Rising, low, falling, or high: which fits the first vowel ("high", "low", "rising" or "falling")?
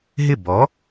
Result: falling